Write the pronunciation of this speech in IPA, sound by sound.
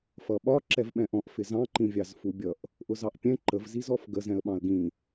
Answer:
f ʌ ɓ ɒ ǁ ɛ v ɓ ɛ̃ ʔ ɔ̃ ʔ f ɪ z ɑ̃ ǃ ĩ vʲ ɑ z f u bʲ ʌ ʔ | ʔ ʊ z ɑ ʔ pʲ ɛ̃ ǃ ə v z i z ɔ f ɡ ə z ɛ̃ ə̯ ɓ ɑ̃ ə̯ ɡ ĩ

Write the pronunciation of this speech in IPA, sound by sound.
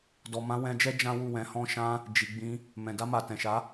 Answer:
d ɔ˨ m ã˨˦ w ɛ̃˧ d͡ʒ ɛ˦ d͡ʒ ã˦ w u˦˨ w ɛ̃˨˦ h ɔ̃˦ ʃ ã˦ | d͡ʒ i˨ ɡ͡b ĩ˧ | m ɛ̃˨ d a˧ m a˨ t ɛ̃˨ ʃ a˨˦

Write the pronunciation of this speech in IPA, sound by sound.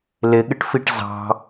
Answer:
l ɪ ɠ ɪ ʈ f i ʈ z ɑ̤

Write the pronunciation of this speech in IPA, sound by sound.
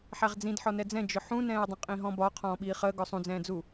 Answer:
ħ æ ʁ d͡z ĩ d ħ ɔ n ɛ d͡z ɛ̃ d͡ʒ ʊ ħ ũ n ɛ̃ː ɐ̯ dˤ ə̃ qʼ ĩ ɦ ɔ̃ b ɒ qʰ ɔ̃ː ɓ iː χ əː ɡ ɔ sˤ ũ d͡z ɛ̃ː d͡z u

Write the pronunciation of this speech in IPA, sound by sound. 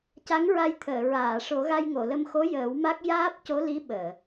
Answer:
c a˧˥ ŋ ɹ a˧ j t̪ʰ əː˨˩˨ ɹ aː˨˩˨ ʂ o˨˩˦ ɣ a˧ j ŋ o˨˩˨ l ə˧ m x o˧˥ j əː˨˩˦ w m a˦˥ k̚ j aː˦˥ p̚ c o˧˥ l i˧˥ ɓ əː˨˩˨

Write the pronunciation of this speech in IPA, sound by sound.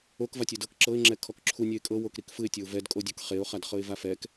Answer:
o k v a tʲ ɛ d ɤ k ǁ ɤ ɪ̯ ŋ͡ǁ ɛ kʰ ɔ k ǁʰ u nʲ ɛ ɪ̯ kʼ ɤ w o k ɾ i k f ɯ ɪ̯ tʲ ɔ ʊ̯ v ɛ d kʼ o dʲ ɔ k χ e ʊ̯ χ a d χ ɤ ɪ̯ v a f ɛ k

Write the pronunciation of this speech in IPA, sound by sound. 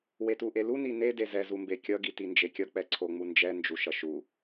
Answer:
w e t u ʔ e l u n i n e d e z ɛ z u m b e kʲ ʌ ɡ i t i n d͡ʒ e kʲ ʌ k͡p ɛ ǀʰ o ŋ͡m u n d͡ʒ ɛ n d͡ʒ u ʃ ʌ ʃ u

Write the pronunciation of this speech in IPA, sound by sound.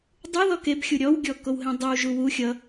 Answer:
dˤ u ð ɔ k e b xʲ u ɾʲ ɔ w ɡʲ ɔ k o w ɦ ẽ dˤ ø w ʒ u w u xʲ ʌ

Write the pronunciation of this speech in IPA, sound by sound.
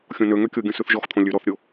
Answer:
xʲ õ n ø ŋ ø kʲ o ɡʲ ɔ̃ s ʉ θ ʒ ɔ x t̪ʰ õ lʲ ʉ ɾ ɔ θ ɾʲ o

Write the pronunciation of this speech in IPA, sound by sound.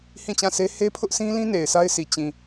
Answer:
h ĩ˦˨ t͡ɕ ã˦˨ sʰ e˦ h e˦ pʰ ʊ˦ ʔ sʰ ĩ˦ l ĩ˦ n e˨ ɪ̯ s a˦ ɪ̯ sʰ i˨ t͡ɕ ĩ˨

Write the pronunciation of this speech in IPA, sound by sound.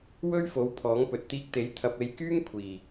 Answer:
w ɵ˥ ɥ f o˨˥ w pʰ ɔː˨˥ ŋ p ɵ˨ t̚ t̪ iː˧ k̚ t̪ e˨˥ j t̪ʰ ɐ˧ p̚ e˧ j k yː˥ ŋ kʷʰ iː˨˩

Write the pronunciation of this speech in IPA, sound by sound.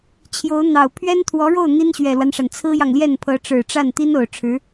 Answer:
t͡ɕʰ j o˧˥ ʊ̯ n̪ ɑ˨˩ ʊ̯ pʰ ɥ ɛ˥ n t̪ʰ w ɔ˧˥ ɻ o˥˩ ʊ̯ n̪ i˥ n ɕ ɥ ɛ˨˩ l w a˦ n ʂ a˩ n t͡sʰ ɹ̩˥ j ɑ˨ ŋ l j ɛ˥˩ n pʰ ɤ˧˥ ʈ͡ʂ ɻ̩˨˩ ʈ͡ʂ a˥˩ n t̪ i˥ n o˨˩ ʊ̯ ʈ͡ʂʰ ɻ̩˧˥

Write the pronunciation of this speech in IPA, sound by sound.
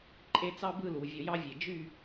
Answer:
ǃʼ e˥˧ t͡s ɑ˥ b ɯ˥˧ l u˩˧ vʲ o˧ j ɑ˥ vʲ e˧˩ d͡ʒ y˥˧

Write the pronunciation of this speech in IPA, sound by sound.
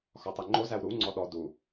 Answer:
x ɒ tˤ ɛ ŋ͡ǃ o z æ w ɾ u ŋ͡ǀ ɔ ɗ ɔ d u

